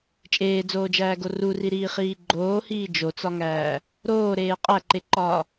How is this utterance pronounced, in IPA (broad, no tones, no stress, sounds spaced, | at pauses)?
t͡ʃʼ eː d͡z oː d͡ʒ æː ɡ o r u r i ɾ iː χ iː ɡ͡ǃ oː h iː d͡ʒ o t͡s ɒ ŋ æː | ɾ oː ɾ eː qʼ æ ǃ e ǃ ɒː